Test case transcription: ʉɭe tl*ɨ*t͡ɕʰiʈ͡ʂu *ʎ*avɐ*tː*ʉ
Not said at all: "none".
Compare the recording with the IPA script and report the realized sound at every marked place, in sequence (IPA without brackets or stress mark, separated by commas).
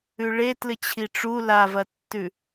ɨ, l, tː